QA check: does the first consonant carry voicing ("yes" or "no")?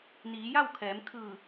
yes